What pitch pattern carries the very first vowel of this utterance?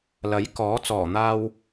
rising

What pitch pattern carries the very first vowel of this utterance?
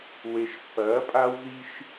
low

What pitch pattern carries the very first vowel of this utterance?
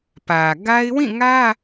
low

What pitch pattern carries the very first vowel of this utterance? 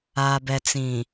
low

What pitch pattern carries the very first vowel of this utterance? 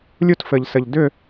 high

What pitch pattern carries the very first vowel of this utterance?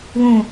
high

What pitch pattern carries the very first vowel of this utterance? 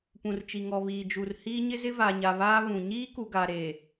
low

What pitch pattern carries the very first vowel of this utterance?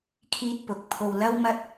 high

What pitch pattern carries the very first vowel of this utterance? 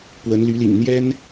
rising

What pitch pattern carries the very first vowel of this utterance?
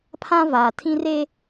high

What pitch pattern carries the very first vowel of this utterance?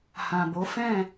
low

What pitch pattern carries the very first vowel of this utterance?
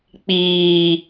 low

